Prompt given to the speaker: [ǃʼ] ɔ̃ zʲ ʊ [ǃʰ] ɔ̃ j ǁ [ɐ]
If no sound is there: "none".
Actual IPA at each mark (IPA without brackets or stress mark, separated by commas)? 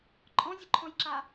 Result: ǃʼ, ǃʰ, a